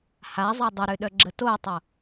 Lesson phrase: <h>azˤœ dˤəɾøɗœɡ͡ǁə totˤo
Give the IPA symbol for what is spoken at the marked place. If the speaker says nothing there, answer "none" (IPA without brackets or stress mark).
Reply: h